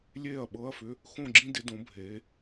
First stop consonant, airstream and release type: implosive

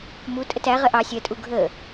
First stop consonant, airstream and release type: ejective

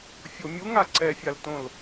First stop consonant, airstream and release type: click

